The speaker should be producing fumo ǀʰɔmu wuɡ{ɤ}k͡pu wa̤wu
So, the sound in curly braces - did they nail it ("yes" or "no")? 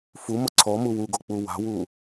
no